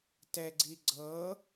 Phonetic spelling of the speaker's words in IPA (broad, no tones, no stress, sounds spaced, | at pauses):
t ɛ ɡ͡ǀ i ɡ͡ǀ ɤ